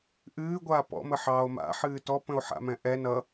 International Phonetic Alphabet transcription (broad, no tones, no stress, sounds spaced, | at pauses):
ʔ ɨː ɡʷ aː p ɔ̰ m ə ħ ɑː o̯ m a̰ ħ ɨː t ɔ p ə̃ o̯ ħ a̰ m ɛ̃ ʔ ɛ n ʌ